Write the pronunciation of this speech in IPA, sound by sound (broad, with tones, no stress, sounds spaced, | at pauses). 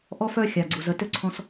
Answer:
ʔ ɔ˦ f œ˦ xʲ a˨ ɡ͡ǀ u˨ z ə˨ t ʏ˦ ǀʰ ɔ̃˧ s